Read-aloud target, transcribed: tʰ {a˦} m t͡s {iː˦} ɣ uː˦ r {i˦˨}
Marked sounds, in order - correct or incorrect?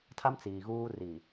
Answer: correct, incorrect: iː˨, incorrect: i˨

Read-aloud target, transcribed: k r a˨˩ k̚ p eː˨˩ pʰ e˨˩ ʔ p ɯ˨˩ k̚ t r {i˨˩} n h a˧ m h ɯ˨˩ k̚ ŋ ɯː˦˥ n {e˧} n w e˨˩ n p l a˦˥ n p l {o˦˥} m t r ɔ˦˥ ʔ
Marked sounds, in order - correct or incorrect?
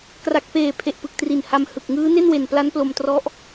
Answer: correct, incorrect: e˥˩, incorrect: o˧

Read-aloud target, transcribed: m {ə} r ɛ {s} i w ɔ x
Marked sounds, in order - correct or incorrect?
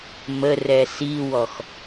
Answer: correct, correct

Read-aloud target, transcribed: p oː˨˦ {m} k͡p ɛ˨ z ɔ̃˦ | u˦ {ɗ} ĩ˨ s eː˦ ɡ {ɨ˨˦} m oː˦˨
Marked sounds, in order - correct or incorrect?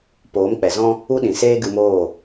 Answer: correct, correct, incorrect: ɨ˧

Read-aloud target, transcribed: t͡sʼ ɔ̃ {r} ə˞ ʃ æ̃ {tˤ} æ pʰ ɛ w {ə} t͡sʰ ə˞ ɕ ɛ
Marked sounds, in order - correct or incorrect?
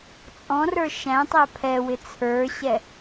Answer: correct, correct, incorrect: ɪ

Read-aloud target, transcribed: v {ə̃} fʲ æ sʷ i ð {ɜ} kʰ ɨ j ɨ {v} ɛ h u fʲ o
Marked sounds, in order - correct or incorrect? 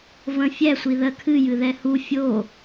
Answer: correct, correct, incorrect: ð

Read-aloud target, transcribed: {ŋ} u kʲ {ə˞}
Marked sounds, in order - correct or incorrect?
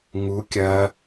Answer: correct, incorrect: ɐ

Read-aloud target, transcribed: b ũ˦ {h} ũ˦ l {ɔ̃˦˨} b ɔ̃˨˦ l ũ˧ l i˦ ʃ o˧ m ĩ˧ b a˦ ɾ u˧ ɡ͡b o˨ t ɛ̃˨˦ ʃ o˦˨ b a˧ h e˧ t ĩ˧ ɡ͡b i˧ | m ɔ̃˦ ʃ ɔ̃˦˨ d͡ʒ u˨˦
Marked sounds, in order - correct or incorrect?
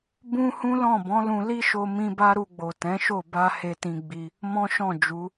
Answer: correct, correct

